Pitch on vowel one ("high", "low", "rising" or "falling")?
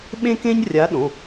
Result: high